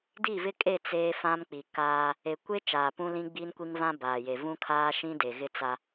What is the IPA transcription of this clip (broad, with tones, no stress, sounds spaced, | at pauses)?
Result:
d i˦˨ v ɪ˦ kʼ e˦˨ t͡s e˦ f ã˦ m k͡p i˨ k aː˦ | e˨ kʷ e˦ t͡ʃ aː˨ p ũ˦ l ĩ˦ ɡ͡b iː˦ n kʷ i˦ ŋ v ã˦ b aː˨ j e˨ v ũ˦ kʰ aː˦ ʃ ĩ˦ d e˨ ɣ ɪ˦ t͡s a˦